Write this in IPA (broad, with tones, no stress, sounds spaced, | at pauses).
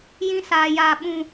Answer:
j ĩ˦ s aː˨ j aː˨ ɓ ũ˨